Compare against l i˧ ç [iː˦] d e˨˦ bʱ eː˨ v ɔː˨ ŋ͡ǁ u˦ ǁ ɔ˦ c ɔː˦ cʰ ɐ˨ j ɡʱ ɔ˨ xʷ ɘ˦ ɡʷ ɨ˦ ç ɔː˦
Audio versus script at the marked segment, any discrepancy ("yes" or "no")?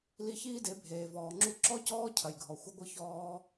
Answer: no